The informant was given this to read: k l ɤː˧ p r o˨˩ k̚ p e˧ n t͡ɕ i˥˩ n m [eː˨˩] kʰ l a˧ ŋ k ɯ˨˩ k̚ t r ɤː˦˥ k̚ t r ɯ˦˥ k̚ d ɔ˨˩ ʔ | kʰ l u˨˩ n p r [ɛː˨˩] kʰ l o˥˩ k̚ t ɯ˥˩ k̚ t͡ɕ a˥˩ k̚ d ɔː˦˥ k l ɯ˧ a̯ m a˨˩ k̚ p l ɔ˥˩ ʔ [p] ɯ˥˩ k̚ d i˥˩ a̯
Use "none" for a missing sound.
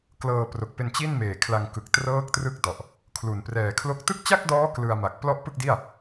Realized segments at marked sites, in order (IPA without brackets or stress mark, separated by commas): eː˨˩, ɛː˨˩, p